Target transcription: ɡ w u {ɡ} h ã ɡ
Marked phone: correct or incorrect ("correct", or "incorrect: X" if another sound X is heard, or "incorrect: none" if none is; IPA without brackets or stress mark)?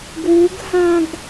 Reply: correct